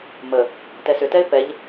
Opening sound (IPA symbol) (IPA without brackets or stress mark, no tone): m